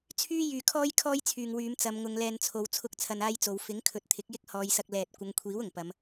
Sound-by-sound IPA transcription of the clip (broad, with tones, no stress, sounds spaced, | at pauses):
t͡sʰ yː˥ j yː˨ kʰ ɔː˥ j kʰ ɔː˥ j t͡sʰ yː˨ ŋ w yː˨˧ m t͡s ɐ˨˧ m ŋ ʊ˨˧ ŋ l ɛː˧ n t͡sʰ o˨˧ w t͡sʰ ʊ˥ k̚ t͡sʰ ɐ˧ n aː˥ j t͡s o˨˧ w f ɪ˨˥ ŋ kʰ ɵ˨ t̚ t̪ʰ ɪ˨˥ k̚ j ɪ˥ k̚ h ɔː˨˧ j s ɐ˧ k̚ l ɛː˨ t̚ kʷ ɐ˨˧ ŋ kʷʰ iː˨˥ w ʊ˨˩ ŋ p ɐ˨˧ m